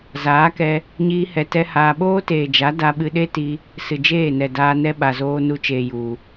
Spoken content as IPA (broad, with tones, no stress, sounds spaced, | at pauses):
z aː˨˦ k ɛ˧ | ɲ iː˦ h ɛ˧ t ɛ˦ h aː˧ ɓ oː˦ t eː˨ d͡ʒ a˨˦ d a˧ ɓ ɨ˧ ɗ e˦ t i˧ | s ɨ˨ d͡ʒ eː˦˨ n ɛ˨ d aː˧ n ɛ˦ ɓ a˨ z oː˧ n u˧ t͡ʃ eː˨ j u˨